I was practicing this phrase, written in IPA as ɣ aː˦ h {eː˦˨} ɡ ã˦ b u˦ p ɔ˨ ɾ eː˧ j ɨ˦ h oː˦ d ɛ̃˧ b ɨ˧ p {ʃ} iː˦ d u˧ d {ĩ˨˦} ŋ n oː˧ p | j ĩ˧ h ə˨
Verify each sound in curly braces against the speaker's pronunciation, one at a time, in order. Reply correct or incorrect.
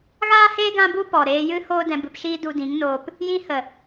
incorrect, correct, correct

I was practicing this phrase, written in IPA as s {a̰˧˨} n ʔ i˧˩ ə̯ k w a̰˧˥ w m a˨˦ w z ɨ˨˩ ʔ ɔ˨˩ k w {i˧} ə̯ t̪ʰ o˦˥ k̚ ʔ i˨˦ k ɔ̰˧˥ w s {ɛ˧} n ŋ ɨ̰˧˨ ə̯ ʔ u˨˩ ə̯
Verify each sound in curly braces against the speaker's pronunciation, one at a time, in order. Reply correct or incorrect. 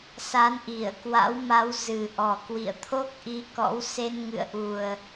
incorrect, incorrect, incorrect

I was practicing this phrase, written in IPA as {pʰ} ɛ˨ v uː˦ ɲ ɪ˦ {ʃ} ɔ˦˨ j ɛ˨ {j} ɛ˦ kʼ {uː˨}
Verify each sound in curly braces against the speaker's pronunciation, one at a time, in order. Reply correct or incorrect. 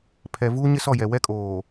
correct, incorrect, incorrect, incorrect

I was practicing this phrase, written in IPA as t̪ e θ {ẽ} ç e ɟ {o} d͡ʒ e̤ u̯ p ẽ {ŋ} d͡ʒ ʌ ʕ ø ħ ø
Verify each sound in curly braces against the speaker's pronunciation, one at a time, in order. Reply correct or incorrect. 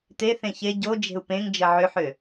correct, correct, correct

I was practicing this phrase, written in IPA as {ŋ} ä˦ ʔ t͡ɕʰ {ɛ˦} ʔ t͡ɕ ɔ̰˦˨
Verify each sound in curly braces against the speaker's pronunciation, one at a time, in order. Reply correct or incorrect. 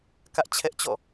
incorrect, correct

